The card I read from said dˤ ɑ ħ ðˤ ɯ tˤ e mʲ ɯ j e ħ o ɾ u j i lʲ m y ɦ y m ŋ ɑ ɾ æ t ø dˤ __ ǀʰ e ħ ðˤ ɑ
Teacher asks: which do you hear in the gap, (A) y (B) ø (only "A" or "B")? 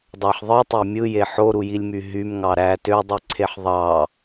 A